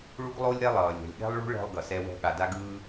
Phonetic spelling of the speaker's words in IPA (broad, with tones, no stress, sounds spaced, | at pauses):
ɭ u˥ ɡ lˠ o˥ lʲ ɾ ɛ˥ lˠ ʌː˩ lʲ ɛ̤˩ lʲ ɠ ɛ̤˥ lˠ ɭ ṳ˥ ɭ ɛ̤˧ lˠ ɡ ʌ˩ s ɛ˧ w ɛ̤˧ ɠ a˩ d a˧ ɡ ɯː˧